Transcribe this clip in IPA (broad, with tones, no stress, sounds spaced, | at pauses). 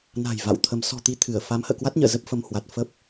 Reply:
n a̤˨˩ j v a̰˧˨ w t̪ʰ ə˨˦ m s ɔ̤˨˩ t̪ i˨˦ t̪ʰ ɨ˧˩ ə̯ f a˨˦ m h ə̰ː˧˨ k w a˦˥ t̚ ɲ ə̰ː˧˨ z ə˦˥ p̚ f ə˧ m h w a˨˩ t̚ f ə˦˥ p̚